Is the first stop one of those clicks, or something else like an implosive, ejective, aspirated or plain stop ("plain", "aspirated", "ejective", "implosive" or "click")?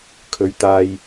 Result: aspirated